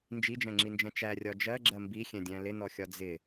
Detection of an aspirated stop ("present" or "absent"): absent